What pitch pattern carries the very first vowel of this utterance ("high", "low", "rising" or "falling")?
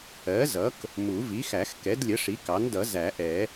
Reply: rising